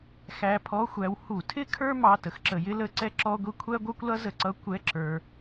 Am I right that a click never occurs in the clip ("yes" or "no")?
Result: no